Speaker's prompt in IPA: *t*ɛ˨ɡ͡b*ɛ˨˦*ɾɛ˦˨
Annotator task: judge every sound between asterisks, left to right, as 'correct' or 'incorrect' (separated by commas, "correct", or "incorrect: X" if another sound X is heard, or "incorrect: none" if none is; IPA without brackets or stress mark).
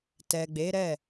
correct, incorrect: e˨˦